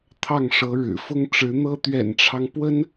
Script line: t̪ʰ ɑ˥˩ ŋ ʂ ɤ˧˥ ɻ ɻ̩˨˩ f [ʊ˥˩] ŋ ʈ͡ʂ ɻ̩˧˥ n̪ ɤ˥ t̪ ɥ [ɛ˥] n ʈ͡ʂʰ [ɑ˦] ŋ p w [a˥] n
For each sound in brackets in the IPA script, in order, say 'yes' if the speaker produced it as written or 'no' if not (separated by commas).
no, no, yes, no